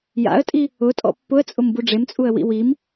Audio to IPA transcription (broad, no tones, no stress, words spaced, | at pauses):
ja̰ə̯tʼi | ʊtʼɔ̰ pːʊə̯t͡sʼʊmbu ɖ͡ʐemt͡sʼuə̯wḭ wim